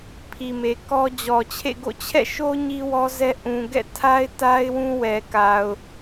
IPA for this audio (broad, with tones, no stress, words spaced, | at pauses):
pʰi˨me˨kɔ˦ d͡ʑɔ˨t͡ɕʰḛ˦˨ɡo̰˦˨ t͡ɕʰɛ̰˦˨ʃo˦ ɲi˦wɔ˦zɛ˦ ʔũ˨ɡɛ̰˦˨tʰa˦ɪ̯ ta˦ɪ̯wũ˦wɛ˨ ka˨ʊ̯